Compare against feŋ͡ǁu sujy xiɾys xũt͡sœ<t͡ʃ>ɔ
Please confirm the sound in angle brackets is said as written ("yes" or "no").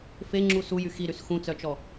yes